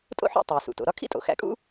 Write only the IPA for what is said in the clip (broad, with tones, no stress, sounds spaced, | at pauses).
tʼ o̰˥ ħ ṵ˥ tˤ æ˩ s ṵ˩ t o̰˩ ɾ ɒ˥ kʰ ḭ˥ tʼ o̰˩ x æ̰˧ kʼ ṵ˥